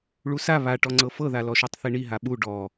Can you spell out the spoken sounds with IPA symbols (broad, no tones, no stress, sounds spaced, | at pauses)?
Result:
ɭ u s a β a ʈ ɔ ŋ͡ǀ ɤ f ɤ ð a l ɔ ʃ o tˤ θ i ɳ i ɦ a ɓ u ɖ ɔ